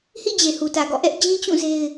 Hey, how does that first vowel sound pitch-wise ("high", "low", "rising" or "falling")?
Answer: falling